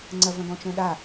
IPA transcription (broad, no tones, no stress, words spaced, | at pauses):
ŋ͡ǀɐvɐ̃ɡɔ̃t͡ʃœ̃ ɗa